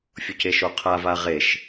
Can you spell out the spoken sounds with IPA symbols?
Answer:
fʲoceʃoqʰav aʁeʃ

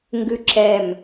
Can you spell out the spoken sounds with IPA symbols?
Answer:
ŋɡʉǁɛm

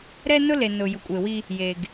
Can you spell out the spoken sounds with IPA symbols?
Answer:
ɾɛ˦nʊ˦ le˨nʊ˨ jʊ˨kʷʼe˨wi˦ | je˨ɡ

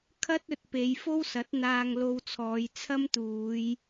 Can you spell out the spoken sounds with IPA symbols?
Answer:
kʰɐ˥t̚ɵ˨t̚pe˨˧j fo˥wsɐ˨˥t̚ n̪aː˧ŋlo˧wt͡sʰɔː˨˧j t͡sʰɐ˥mt̪uː˨˧j

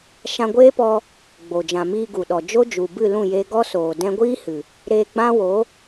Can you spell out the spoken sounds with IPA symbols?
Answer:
ʃã˧ɡʷeː˦pɔ˧ | ɡ͡bo˨ d͡ʒã˨ miː˧ɡu˨ɗɔ˨ d͡ʒo˦ d͡ʒu˨bɨ˦˨lũ˦˨ je˧ɡɔ˦soː˨ dɛ̃˧ɡʷiː˦ hɨ˨ | ɾeː˧ɡ͡bã˦wo˨˦

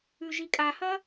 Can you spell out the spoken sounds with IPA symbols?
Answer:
ʉʒikʼahɐ

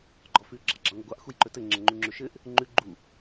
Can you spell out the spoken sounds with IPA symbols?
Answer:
ɡ͡ǃɔfʉ ɡ͡ǁɑɡ͡ǁɑŋʷəɡʷɑʔ xujǃɵtɘ ŋ͡ǁəŋ͡ǃuŋ͡ǁɵʃɘʔ | ŋ͡ǃʉ ɡ͡ǃu

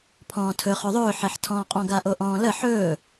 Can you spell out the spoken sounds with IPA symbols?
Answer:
pʰɔ̃ːtʰɵ χɵðˤɵː ħɛħtʰɔ̃ːqʼɔ̃ ɡaʔoʔɔ̃ːlə ħɵː

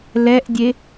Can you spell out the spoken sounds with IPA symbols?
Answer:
lɛʔdʲe

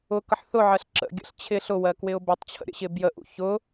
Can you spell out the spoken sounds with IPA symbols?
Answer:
ʊkʌħ θʊʕɜɬ ǁə̰ɡʲə̰ɬ t͡ɕʰɪ ɬʊwɜ kwɪʊ̯bɪtˤt͡ɕʰə̰ ɾʲə̰ɕɪbjəʔṵ çʊ

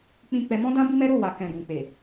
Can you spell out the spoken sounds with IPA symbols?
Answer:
k͡pĩ˧k͡pɛ˧mɔ̃˦dã˦ bi˦mɛ˦ ɾo˦˨ wa˨kɛ̃˨ ɡũ˨k͡pe˨

